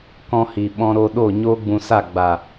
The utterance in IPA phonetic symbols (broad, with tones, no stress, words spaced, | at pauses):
kɔ̃˧hi˨ ɓɔ̃˧ɾo˧ɗo˦˨ ɲoː˦ɡ͡bũ˧sa˦˨ ɡ͡ba˨